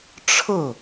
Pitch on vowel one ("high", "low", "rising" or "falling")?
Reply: falling